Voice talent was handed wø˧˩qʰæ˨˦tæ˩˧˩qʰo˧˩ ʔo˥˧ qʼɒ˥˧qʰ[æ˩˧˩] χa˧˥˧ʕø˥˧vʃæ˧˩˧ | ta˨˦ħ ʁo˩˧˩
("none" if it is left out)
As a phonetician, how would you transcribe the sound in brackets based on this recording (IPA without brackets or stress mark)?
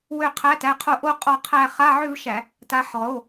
æ˥˧